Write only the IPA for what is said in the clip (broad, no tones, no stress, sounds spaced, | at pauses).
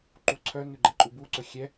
ǃ u ǀʰ œ n ʉ ɡ͡ǃ ɛ ǃʼ u b u ǀ ɵ xʲ ɛ